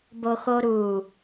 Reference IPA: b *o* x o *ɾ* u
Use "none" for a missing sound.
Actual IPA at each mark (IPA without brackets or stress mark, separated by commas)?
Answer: o, ɾ